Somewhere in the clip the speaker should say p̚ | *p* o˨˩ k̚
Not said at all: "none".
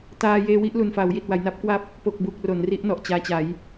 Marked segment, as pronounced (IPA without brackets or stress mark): p